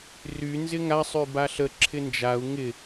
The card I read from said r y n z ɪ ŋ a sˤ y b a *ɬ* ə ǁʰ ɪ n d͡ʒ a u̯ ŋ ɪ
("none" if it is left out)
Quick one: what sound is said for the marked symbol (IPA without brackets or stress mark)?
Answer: ɬ